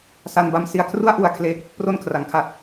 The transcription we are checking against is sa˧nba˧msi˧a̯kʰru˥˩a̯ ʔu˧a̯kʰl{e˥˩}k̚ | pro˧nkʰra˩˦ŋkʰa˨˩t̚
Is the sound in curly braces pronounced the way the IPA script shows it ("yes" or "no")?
no